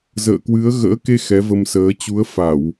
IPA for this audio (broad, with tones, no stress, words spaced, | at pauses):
zə̰ː˧˨kwɨ˨˦ə̯ ɣə̰ː˧˥ke˧ xɛ˨˦və˧msəː˨˦ t͡ɕu˨˦ə̯fa˧˩˨w